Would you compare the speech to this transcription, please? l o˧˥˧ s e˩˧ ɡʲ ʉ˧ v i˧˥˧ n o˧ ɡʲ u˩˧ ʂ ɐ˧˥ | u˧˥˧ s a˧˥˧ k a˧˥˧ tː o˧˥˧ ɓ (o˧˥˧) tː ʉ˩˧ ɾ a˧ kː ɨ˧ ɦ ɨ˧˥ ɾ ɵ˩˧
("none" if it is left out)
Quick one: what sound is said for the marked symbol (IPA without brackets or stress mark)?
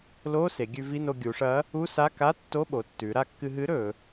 o˩˧